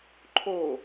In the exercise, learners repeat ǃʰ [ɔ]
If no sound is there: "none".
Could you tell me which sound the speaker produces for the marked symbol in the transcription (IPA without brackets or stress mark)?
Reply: o